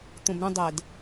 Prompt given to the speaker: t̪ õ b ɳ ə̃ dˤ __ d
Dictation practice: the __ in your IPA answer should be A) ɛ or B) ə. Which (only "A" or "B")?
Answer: A